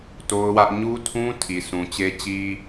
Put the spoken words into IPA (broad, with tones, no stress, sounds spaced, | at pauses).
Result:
t o˦ ʊ̯ w ä˦ ʔ ɲ u˦ tʰ ũ˦ tʰ i˨ s ũ˨ t͡ɕ e˦ t͡ɕ i˦